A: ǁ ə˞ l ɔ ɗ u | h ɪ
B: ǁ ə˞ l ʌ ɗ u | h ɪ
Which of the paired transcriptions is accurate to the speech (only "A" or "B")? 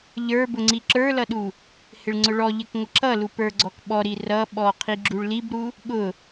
B